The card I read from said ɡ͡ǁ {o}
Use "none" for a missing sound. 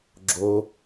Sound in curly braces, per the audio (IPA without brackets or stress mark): o